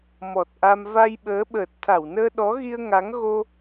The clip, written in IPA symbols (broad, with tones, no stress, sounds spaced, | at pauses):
m ɔ˨˩ t̚ ʔ a˧ m v a˧ j ɓ əː˨˦ ɓ əː˨˩ t̚ t̪ʰ a˧˩ w n əː˧ ɗ ɔ˨˦ ɣ i˧ ə̯ ŋ a˨˦ ŋ ɣ o˧